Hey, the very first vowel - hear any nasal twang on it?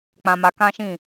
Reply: yes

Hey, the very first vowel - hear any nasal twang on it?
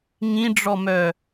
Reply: yes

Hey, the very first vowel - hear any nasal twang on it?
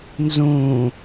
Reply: yes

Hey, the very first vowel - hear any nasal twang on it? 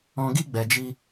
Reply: yes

